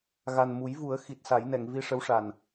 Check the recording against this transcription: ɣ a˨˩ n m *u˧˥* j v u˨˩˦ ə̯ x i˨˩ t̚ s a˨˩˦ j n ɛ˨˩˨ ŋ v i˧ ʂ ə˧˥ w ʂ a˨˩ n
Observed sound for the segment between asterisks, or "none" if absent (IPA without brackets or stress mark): u˨˩˦